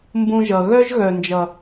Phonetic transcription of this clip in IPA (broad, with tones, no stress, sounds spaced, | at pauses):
m b ũ˧ ʒ ʌ˨ ɣ œ˦ ʒ ɣ œ˨ n d͡ʒ ʌ˨